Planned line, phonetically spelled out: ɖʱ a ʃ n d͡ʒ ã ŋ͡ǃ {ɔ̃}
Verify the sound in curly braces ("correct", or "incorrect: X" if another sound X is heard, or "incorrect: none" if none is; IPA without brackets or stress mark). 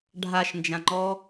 incorrect: ɔ